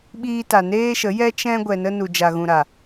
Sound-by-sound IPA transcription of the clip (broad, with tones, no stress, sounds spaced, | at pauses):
ɓ iː˧ t a˨ n eː˦ ʃ ə˨˦ j ɛ˦ t͡ʃ ɛ̃˦ ɡʷ ɛ˧ n ə˦ n u˨ d͡ʒ a˨ ɣ ũ˨ ɾ a˨